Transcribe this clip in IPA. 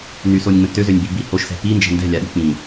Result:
n y s o nʲ ŋ͡m ə̃ t ø z ø nʲ b i b i h o ʃ s ɛ̤ p i n d͡ʒ ɛ̤ n d ɛ̤ lʲ a ɗ i̤ k͡p ĩ

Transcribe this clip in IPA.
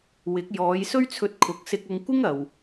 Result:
w ɪ˨˥ k̚ j ɔː˨˧ j s ɵ˥ ɥ t͡sʰ ɵ˧ t̚ kʰ ʊ˨˥ k̚ s ɪ˧ k̚ ʊ˧ ŋ kʷ ɪ˥ ŋ ɐ˨ w

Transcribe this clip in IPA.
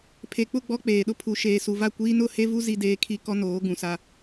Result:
pʰ e˨ k͡p ʊ˦˨ ɡ͡b ɔ˦ k͡p eː˨ ɗ ʊ˦ pʰ u˨ ʃ eː˨ s u˨ v a˦˨ kʷ iː˦ n ʊ˦˨ h e˦ v u˦ z i˦ d eː˦ kʰ i˦ k ɔ˦ n oː˨˦ ɡ ũ˨ s a˦

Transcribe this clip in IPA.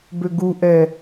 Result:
b ø ɡ u ʔ ɛ

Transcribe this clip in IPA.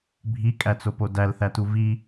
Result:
bʱ i kʼ æ t͡s o p o d æ l θ æ t u v i

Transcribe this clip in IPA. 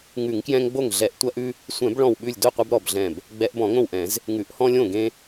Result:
ŋ ʉ˧˩˧ ŋ k j ɛ̃˦ ŋ ɡ͡b o˥˩ ŋ ɮ ɛ˧˩˧ ʔ tʷ ɐ˦ ʔ ʉ˦ | sʷ ɛ̃˧˩˧ b ɭ ɔ̃˧˩ w ɓ ʉ˧˩ lʲ d o˥˩ qʷ ɐ˦ b ɾ ɔ˧˩ b ɮ ɛ̃˧˩ b | ɡ͡b ɛ˧˩˧ ʔ b ɔ̃˧˩˧ ŋ õ˥˩ w ʔ ɛ̃˧˩˧ z | ŋ ʉ˧˩˧ ʔ h ɔ̃˦ lʲ õ˥˩ ɡ ẽ˦

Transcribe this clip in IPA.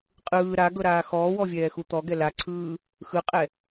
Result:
qʼ ɯː ɾ a ɡ ɤ ɾ aː x ɔː w ɔ vʲ ɛː x u t̪ ɔ ɡ ɛ l a ǀʰ ɯː | x ɯ qʼ ɛ

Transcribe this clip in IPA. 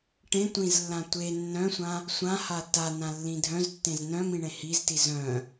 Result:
ʈ ẽ tʷ ĩ z lː ã tʷ e nː œ̃ sʷ ã | sʷ ã h a t a n ã lː ĩ dʱ œ̃ z tː ẽ z n œ̃ m ĩ ɳ ẽ h i z t i z œ̃

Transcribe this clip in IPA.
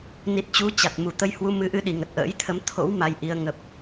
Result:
n i˨˩ t̚ t͡ɕ u˨˦ t͡ɕ a˨˩ t̚ m u˧˩ t̪ ə˧ j h w u˨˦ m ɨ˨˦ ʔ ɨ˧ ɗ i˧˩ ŋ ə˨˩ t̚ ʔ ə̰ː˧˥ j t̪ʰ ə˨˦ m t̪ʰ o̰˧˥ w m a˧ j ʔ i˧ ə̯ ŋ ə˨˩ p̚

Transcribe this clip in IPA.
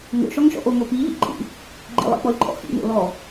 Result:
ŋ o̰ ʃ ɔ ŋ ʃ ɔ̰ ʔ o ŋ o p i ʎ ḭ ǃʼ ḭ | ɡ͡ǃ ḭ lˠ ḭ k͡p ɔ lʲ ǃʼ ɔ̰ x ḭ ŋ o̰ l ɔ

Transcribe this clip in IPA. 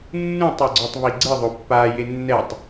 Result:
nː ũ tˤ ɛ ɡ͡ǀ o tˤ β i ɡ͡ǀ ɯ ðˤ o pː a j e nː ɛ tˤ

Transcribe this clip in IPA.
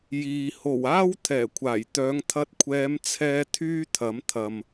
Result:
j iː˨ h o˨˩ w aː˥ w t̪ʰ ɛː˨˩ kʷʰ aː˨˩ j t̪ œː˨˧ ŋ t̪ʰ ɐ˧ t̚ kʷʰ ɛː˨˧ m t͡sʰ ɛː˧ t̪ʰ yː˥ t̪ʰ ɐ˨˥ m t̪ʰ ɐ˨ m

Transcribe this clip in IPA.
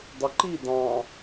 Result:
dˤ u ǃ i d ɑ̃

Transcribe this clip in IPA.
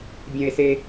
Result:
bʲ ɐ̃˥ e̯ s e˥

